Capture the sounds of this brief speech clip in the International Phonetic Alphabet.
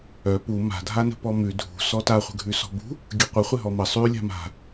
œ p u m a̤ dʱ a n ə̤ p ɔ m ʉ dʱ ṳ s ɔ t a χʷ ə̤ ɡʱ ʉ s ɔ̤ b ṳ | ɡʲ ə qʷ ə χʷ ɪ ɦ ɔ m ʌ sˤ ʉ lʲ a̤ m a̤

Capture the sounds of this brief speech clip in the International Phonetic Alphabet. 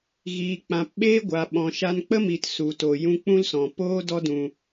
ɣ iː˨ k͡p ã˨ p ɓ eː˦ ɡʷ a˨ ɓ ɔ̃˨ ʃ a˧ n k͡p ə˦ m i˨ t s u˨ t o˨ j ũ˧ k͡p ũ˦ l s ɔ̃˨ p oː˦ d ɔ˦ d ũ˧

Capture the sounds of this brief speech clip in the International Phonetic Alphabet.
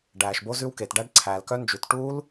ɖ æː˨ ʃ b o˦˥ z ʉ˦˥ w k e˨ t ɖ æ˦˥ ɖ ǀʰ æː˨ l k œ˦˥ n d͡ʒ ʉ˨ t ʈ uː˦˥ l

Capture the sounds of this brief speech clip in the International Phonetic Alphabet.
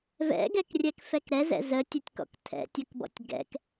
v ɛ̰ ɡ ɛ k rʲ ɛ k f ɛ k ɾ ɛ z ɛ̰ z ə tʲ o tʲ k ɔ̰ k tʰ ɛ̰ tʲ ə k b ɔ̰ tʲ ɡ ɛ̰ k

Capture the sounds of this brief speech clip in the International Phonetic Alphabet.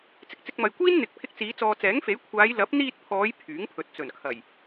t͡s ɪ˨ k̚ t͡s ɪ˧ k̚ m ɐ˨ j kʷ iː˥ n n̪ ɪ˨˥ k̚ pʰ ɪ˧ k̚ t͡s iː˨˧ t͡s ɔː˨ t͡s ɛː˨˥ ŋ f e˨˥ j kʷʰ aː˨˧ j l ɐ˨˥ p̚ n̪ iː˧ t̚ pʰ ɔː˨˧ j pʰ yː˨˥ ŋ pʰ ɵ˨ t̚ t͡s ɵ˨˩ n kʰ ɐ˨˩ j

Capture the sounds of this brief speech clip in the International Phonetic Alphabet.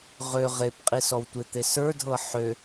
ʁ ø ʁ e p qʼ i s ɔ w tʷ e t̪ e s ə˞ dʱ ɤ ħ ø

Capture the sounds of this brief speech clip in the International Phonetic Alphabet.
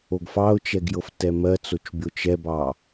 o ɡ f ɑ ʊ̯ t͡ʃ ɛ ɡ j ɤ f t ɛ m ɜ t͡s o t͡ʃ bʲ o t͡ʃ ɛ b ɑ

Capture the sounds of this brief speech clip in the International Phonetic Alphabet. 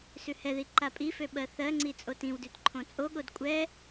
s ʉ h ɛ ð i ǃ a pʼ i f ø ɓ ɜ θ ɜ ŋ͡ǀ i t͡sʼ o t ĩ w d ʉ t ǃʰ õ t͡sʼ o ɠ o d kʷʼ ɛ

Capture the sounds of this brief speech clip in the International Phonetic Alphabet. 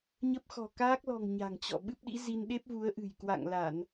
ɲ ə˦˥ p̚ x ɔ̤˨˩ k aː˦˥ k̚ l ɔ̤˨˩ ŋ ɲ a̤˨˩ ŋ t͡ɕ ɔ̰˧˨ ɓ ɨ˦˥ p̚ ɗ ḭ˧˥ z i˧ n ɗ e˦˥ p̚ v u˨˦ ə̯ ʔ ɨ̤˨˩ j k w a̰˧˨ ŋ l a˧˩˨ n

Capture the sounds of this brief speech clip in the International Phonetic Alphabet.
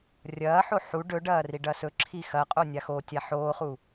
rʲ ɐː ħ o ħ u ɖ ɵ ɖ ɐː r i ɖ ɐ s ɵ ǁʰ i x ɐ qʼ o nʲ a x o tʲ a ħ oː χ u

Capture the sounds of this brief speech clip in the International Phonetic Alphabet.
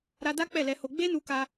ɾ a˧ d a˦ k͡p ɛ˦˨ l ɛ˧ h o˧ ɡ͡b e˦ n u˧ k a˧

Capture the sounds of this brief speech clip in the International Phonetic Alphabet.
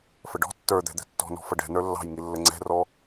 f ə ɖ ɔ̤ tː ə˞ d̪ ɛ̤ d̪ ɛ̤ tː ɔ̤ n ɔ̤ f ʌ ɖ ɛ̤ n ə˞ lː ɑ̤ j ŋ i lː ə ŋ͡ǀ ɛ̤ r ɔ

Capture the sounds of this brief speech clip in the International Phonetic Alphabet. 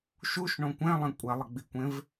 ʃ u ʃ ɳ õ kʷ ɛ̃ lˠ ẽ kʷʼ ɛ lˠ ɪ ɡ͡b i kʷ ẽ v

